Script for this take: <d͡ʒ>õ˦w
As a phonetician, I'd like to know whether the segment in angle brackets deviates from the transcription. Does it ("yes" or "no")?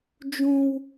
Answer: no